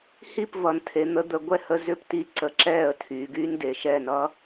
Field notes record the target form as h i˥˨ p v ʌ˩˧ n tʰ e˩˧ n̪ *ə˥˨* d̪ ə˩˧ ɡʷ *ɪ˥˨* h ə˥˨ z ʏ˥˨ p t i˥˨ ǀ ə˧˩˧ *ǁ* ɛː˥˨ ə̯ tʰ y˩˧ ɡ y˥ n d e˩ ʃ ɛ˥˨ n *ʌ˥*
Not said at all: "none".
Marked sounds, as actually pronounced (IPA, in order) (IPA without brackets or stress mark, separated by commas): ə˩˧, ɛ˥˨, ǁ, ʌ˥